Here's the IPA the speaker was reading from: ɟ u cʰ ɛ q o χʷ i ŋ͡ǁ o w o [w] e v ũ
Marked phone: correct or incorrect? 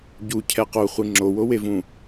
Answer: correct